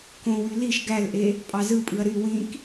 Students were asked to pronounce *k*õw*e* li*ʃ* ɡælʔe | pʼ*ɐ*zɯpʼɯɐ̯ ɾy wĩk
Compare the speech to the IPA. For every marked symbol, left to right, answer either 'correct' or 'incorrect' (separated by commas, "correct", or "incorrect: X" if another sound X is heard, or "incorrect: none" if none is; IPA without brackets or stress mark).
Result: correct, incorrect: y, correct, incorrect: ɑ